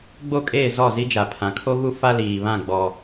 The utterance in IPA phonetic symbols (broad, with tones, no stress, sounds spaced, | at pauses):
ɡ͡b o˦˨ kʼ eː˦˨ z ɔ˦˨ z i˦ d͡ʒ a˨ pʰ ã˨ kʰ o˦ ɣ u˦ f a˦ l iː˨ β ã˦˨ ɡ͡b ɔ˦